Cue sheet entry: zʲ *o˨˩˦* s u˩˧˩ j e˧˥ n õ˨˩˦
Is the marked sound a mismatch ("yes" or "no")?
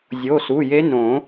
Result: yes